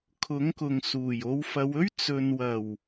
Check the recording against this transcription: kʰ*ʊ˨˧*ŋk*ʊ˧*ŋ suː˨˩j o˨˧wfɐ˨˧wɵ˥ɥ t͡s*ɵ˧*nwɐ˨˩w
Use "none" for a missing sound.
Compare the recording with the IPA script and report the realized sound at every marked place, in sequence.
ʊ˨˥, ʊ˨, ɵ˨

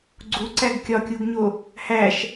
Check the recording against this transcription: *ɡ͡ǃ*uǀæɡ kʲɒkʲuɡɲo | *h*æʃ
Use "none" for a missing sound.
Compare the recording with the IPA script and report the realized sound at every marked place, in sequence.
ɡ͡ǀ, h

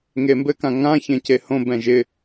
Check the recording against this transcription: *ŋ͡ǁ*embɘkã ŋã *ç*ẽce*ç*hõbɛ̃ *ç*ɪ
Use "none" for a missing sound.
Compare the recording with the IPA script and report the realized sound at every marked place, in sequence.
ŋ, ç, none, ʒ

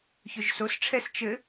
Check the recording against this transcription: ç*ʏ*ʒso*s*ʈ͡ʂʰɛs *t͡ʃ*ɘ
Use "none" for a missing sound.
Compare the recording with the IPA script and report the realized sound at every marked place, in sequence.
ʏ, s, t͡ʃ

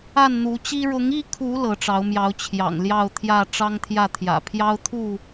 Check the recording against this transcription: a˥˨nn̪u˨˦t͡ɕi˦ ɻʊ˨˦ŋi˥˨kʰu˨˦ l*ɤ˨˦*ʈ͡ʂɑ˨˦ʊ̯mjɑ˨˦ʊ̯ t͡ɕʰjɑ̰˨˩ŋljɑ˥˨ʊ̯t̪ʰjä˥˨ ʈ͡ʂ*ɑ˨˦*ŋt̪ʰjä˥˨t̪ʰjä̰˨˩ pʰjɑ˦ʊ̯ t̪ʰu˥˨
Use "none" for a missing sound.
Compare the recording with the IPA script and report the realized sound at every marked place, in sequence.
ɤ˨˦, ɑ˦

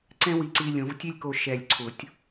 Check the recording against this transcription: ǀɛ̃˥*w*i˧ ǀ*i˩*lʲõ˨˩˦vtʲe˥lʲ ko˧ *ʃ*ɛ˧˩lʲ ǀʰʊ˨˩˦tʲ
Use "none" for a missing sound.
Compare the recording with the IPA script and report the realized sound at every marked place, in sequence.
w, i˧, ʃ

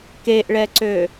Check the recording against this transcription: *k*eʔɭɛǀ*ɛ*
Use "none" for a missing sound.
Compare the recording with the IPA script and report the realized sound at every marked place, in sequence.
k, ø

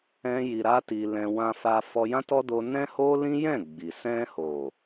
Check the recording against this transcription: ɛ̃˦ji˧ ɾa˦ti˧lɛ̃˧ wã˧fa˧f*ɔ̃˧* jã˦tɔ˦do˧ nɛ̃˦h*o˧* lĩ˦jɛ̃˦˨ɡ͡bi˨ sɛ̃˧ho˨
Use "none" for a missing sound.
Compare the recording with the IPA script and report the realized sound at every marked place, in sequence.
ɔ˧, o˦

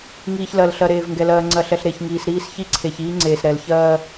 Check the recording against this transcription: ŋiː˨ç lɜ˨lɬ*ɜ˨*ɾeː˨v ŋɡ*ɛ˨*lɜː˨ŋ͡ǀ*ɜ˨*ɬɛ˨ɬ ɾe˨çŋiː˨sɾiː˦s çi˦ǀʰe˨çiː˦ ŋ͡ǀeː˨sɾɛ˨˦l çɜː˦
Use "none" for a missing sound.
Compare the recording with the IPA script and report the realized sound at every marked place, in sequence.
ɜ˨, ɛ˨, ɜ˨

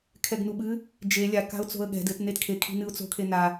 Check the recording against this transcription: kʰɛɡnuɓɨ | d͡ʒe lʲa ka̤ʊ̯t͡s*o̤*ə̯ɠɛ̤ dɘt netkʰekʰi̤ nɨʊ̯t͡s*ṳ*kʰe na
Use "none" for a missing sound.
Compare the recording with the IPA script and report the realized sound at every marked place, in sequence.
o̤, o̤

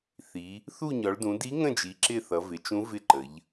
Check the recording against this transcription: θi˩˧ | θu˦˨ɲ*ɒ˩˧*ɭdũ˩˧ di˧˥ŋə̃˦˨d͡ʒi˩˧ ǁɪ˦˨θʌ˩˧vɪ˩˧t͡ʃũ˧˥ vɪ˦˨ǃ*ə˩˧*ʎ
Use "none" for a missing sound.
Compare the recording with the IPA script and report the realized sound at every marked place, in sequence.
ɒ˩˧, ə˩˧

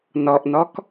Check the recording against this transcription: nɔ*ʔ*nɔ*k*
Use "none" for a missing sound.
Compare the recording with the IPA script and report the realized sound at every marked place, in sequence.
ʔ, k

